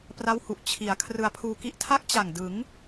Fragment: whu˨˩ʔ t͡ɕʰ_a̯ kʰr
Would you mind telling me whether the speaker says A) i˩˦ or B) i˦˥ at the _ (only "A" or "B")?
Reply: A